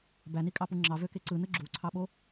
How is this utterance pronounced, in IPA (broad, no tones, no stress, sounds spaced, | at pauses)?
b æ n i kʼ ɑ p u ŋ͡ǁ ɑ v ø k e ǀ ɯ n ɯ ɡ͡ǁ u ǀʰ ɑ ɓ o